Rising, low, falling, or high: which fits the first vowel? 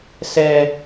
low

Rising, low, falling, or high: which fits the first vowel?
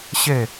falling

